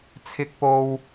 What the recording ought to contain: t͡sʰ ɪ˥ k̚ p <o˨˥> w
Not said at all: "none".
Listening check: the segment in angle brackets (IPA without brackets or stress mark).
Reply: o˥